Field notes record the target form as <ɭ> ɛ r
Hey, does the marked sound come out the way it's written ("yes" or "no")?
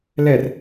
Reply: no